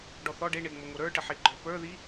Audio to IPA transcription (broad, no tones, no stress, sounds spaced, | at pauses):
ɖ ɔ θ ɔ ɖ e ɳ e ŋ͡m o ŋ o ɾ ə˞ ʈ ə ħ i ɡ͡ǃ ə˞ p ə˞ ð i